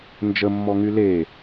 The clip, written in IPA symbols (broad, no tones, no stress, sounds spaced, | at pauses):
n d͡ʒ ə mː ɔ ŋ y l e